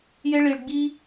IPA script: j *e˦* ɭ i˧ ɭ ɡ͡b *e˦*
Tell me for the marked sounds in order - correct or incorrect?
correct, incorrect

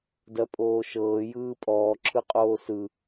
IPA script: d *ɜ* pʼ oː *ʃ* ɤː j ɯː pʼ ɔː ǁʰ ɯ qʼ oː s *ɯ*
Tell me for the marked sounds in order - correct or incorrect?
correct, correct, correct

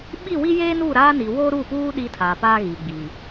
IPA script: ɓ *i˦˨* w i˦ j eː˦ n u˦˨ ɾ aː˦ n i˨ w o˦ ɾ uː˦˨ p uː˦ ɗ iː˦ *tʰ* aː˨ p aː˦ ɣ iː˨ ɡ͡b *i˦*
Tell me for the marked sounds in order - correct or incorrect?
correct, correct, incorrect

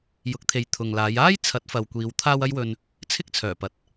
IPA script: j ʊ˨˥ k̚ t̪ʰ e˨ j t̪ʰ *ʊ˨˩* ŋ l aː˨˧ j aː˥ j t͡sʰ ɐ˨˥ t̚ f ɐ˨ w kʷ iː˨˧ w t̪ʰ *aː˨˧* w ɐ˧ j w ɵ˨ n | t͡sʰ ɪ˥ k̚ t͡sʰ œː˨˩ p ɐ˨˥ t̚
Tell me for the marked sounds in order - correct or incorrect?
incorrect, incorrect

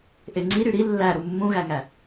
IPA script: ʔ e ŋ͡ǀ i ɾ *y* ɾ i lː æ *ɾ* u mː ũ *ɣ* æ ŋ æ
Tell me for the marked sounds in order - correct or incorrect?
correct, correct, correct

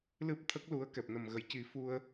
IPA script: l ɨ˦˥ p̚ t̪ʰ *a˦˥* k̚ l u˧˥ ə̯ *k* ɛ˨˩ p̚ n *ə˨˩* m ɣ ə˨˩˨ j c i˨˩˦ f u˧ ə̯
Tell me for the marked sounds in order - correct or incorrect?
incorrect, correct, correct

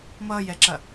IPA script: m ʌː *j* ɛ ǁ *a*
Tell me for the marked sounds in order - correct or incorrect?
correct, incorrect

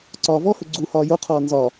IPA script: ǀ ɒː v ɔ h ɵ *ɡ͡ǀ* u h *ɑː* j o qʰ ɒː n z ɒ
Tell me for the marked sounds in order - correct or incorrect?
correct, incorrect

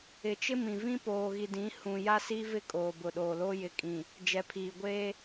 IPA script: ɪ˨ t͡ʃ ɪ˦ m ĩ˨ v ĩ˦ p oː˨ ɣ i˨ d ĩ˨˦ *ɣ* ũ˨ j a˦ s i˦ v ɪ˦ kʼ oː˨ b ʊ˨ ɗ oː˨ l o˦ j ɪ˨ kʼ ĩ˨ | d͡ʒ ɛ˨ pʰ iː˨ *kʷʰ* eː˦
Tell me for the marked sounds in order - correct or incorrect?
incorrect, incorrect

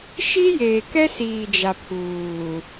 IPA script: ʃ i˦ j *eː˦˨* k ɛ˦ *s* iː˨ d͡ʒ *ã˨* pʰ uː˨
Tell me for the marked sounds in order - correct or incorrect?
incorrect, correct, incorrect

